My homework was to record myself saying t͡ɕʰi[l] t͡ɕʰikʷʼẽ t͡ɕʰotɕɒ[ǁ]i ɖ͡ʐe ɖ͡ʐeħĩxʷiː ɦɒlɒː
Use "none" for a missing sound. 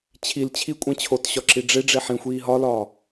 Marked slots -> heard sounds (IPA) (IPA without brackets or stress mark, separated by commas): l, ǁ